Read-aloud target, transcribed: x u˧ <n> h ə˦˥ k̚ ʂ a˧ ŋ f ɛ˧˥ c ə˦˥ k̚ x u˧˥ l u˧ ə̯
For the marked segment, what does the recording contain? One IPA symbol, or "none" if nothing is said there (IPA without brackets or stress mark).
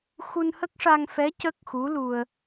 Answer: n